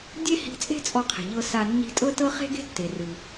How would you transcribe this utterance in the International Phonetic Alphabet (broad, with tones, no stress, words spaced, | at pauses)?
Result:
dʲe˥hi̤˧t͡sʼe̤˥ t͡sʼɔ˧qʰe̤˩ʎɤ˧ sa˧ nːi̤˧tʼɤ˥tɤ˥ χe̤˥ɡe̤˥ tːe˩rɯ˩